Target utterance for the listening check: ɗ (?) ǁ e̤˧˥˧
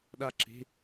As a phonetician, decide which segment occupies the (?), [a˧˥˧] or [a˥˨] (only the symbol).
a˥˨